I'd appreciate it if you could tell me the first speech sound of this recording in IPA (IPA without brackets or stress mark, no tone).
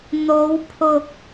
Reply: n̪